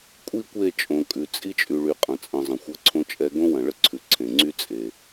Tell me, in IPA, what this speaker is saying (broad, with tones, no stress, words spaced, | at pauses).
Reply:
kʷʼi˦˨kʷe˦˨ t͡ʃʼõ˨kʼʉ˨ t͡sʼi˦t͡ʃʼy˨ɭy˨ qʼɐ̃˨t͡sʼə̃˨zˤə̃˨ xʷɐ˦ǀʰõ˦t͡ʃʼɛ˦ ɡõ˦wɐ̃˨ɭə˦ǀʰʉ˨ ǀʰẽ˨ŋ͡ǀy˦ t͡sʼe˨